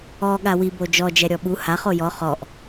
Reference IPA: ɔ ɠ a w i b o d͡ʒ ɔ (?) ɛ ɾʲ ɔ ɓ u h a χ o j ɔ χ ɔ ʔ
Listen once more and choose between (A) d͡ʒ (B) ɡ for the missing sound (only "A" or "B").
A